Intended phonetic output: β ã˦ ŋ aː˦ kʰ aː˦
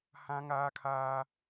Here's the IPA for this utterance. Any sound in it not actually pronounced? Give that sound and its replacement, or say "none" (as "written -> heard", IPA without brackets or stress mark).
β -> h